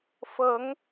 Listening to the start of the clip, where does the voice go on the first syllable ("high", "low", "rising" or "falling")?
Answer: rising